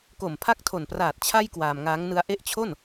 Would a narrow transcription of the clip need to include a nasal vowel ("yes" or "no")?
no